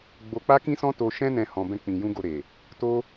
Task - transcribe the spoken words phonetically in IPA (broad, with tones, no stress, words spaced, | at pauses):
ɡ͡bo˧k͡pa˦kĩ˦sɔ̃˦ to˧ʃɛ̃˦nɛ̃˧ hɔ̃˧bɛ̃˦k͡pĩ˧jũ˦ ɡo˧ɾe˨ | to˦